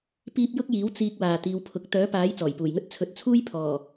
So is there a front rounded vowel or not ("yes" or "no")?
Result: yes